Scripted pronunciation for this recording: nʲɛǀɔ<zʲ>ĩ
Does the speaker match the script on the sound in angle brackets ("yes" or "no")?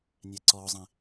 no